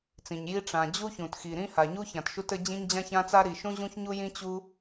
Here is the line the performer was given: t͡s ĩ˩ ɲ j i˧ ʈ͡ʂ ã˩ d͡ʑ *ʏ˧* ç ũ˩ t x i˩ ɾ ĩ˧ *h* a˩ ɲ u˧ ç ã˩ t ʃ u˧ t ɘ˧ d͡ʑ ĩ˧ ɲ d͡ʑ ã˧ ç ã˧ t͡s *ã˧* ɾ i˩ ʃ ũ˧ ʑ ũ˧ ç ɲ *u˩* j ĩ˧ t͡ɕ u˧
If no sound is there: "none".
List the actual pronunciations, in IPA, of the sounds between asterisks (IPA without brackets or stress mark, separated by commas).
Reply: u˧, h, a˧, u˧